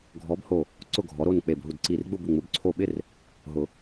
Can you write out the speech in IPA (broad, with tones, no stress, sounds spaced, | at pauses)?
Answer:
ɡʱ ɔ˨˥ b h o˧˩ | ǀ ʊ˥˨ ɡʱ ɔ˨˥ ɾ o˥˨ n k͡p e˧˩ b ɦ u˧˩ d ǀ i˧˩ r ɡ͡b ʊ˥˨ b ɪ˧˩ ŋ͡m ʊ˨˩˦ b ǀʰ o˧˩ ɓ ɪ˥˨ r | ɦ ʊ˨˩˦